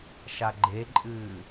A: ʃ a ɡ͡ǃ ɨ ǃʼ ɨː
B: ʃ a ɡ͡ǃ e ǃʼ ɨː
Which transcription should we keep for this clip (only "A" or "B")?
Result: B